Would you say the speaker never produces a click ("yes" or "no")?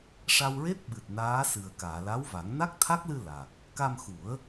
yes